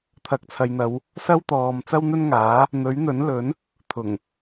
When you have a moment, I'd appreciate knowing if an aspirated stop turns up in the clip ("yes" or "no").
yes